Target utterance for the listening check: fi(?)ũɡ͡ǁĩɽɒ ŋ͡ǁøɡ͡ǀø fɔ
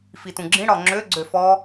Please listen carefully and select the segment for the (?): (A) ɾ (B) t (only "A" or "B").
B